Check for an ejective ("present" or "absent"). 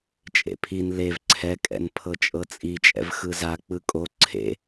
present